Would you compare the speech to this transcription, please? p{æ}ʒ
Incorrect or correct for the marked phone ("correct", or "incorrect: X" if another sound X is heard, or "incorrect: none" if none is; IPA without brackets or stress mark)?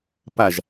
incorrect: a